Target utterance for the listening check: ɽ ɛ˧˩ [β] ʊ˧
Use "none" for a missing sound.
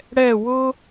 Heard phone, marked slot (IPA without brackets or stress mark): w